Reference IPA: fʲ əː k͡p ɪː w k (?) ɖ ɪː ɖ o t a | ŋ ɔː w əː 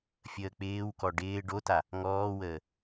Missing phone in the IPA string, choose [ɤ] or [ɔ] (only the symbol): ɔ